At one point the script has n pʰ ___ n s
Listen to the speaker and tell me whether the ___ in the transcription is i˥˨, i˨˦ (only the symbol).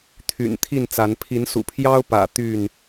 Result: i˨˦